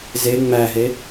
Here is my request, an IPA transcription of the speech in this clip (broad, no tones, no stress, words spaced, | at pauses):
ze ŋ͡mæɦe